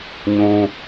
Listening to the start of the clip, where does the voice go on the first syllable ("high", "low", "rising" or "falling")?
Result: high